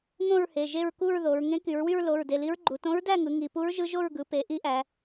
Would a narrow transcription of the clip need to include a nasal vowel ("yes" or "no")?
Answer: yes